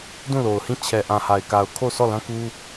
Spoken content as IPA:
d ũ˦˨ l o˨ ʊ̯ h ĩ˦˨ t͡ɕʰ ɛ˨ ʔ ã˨ h a˨ ɪ̯ k a˨ ʊ̯ kʰ o˦˨ s ɔ˦˨ l ã˦ k u˦

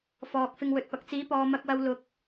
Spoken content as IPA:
f ɔː˨ k̚ f ɪ˧ ŋ w ɵ˨˥ t̚ p ɐ˨˥ k̚ t͡s iː˨˥ p ɔː˨ m ɐ˧ k̚ w ɐ˧ w l ʊ˧ k̚

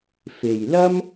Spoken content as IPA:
f e˨ j l ɐ˥ m

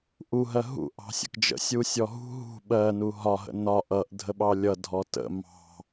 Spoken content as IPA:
ʔ u ɦ ɜ ɦ ṵ ʔ ɑ̤ sʲ ə̰ k d͡ʒ ə̰ sʲ u sʲ ɔ ɦ ṳ ɦ ṳ ɓ ɜ n u ɦ ɒ ɦ ə̰ n ɒ ʔ ʌ ʔ dʱ ə ɓ ɑ lʲ ʌ dʱ ɔ t ə̰ m ɑ̤

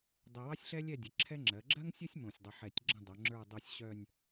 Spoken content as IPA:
dˤ ɛ˧ w ɑ˥ sʲ ɬ ɛ˥ lʲ ɛ˥˧ dʲ ə˩˧ ǁʰ ɛ˥ ŋ͡ǁ ɜ˩˧ ɡ͡ǁ ɜ˥ ŋ sʲ ə˥ sʲ m õ˧˩ sʲ dˤ ə˧ ħ ɛ˧˩ tʲ ɡ͡ǁ ə̃˥˧ dˤ o˩˧ ŋ͡ǁ ə˞˥˧ dˤ o˥˧ sʲ ɕ œ˥˧ nʲ

